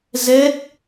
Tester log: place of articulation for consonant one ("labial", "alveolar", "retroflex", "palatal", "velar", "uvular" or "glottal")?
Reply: alveolar